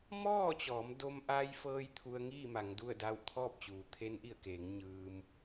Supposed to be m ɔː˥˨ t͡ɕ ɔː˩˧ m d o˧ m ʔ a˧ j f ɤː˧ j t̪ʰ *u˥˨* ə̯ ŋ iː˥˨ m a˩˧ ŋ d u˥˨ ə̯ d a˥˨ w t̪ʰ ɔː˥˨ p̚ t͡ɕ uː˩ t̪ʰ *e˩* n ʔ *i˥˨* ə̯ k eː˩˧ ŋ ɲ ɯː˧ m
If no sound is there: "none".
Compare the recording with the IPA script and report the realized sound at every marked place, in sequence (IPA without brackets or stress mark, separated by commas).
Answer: u˧, e˧˥, i˧˩